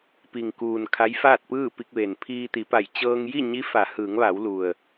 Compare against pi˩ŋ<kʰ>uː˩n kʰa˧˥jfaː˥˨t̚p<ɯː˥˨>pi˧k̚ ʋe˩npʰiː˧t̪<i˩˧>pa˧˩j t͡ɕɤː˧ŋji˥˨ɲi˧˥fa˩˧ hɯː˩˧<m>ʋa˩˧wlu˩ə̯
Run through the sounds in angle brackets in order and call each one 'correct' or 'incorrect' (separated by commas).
incorrect, correct, correct, incorrect